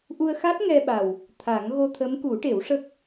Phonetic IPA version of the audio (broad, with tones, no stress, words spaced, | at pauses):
ʔu˧ə̯xa˦˥t̚ ŋɛ˧ɓa˨˩w | t̪ʰa˨˩˦ŋ ɣo˧t̪ʰə˧˥m ku˨˩˦ʈe˨˩˦wʂə˦˥k̚